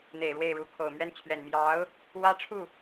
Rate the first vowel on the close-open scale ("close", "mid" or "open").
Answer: mid